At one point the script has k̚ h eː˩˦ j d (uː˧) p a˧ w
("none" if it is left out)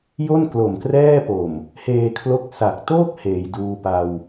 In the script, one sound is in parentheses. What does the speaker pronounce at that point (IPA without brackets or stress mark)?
uː˧